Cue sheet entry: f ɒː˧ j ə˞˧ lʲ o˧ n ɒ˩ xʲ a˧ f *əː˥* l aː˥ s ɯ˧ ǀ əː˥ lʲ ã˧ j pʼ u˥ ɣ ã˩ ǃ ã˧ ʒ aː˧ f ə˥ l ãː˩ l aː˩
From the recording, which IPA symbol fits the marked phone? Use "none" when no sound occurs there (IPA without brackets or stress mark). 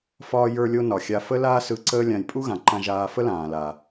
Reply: ə˥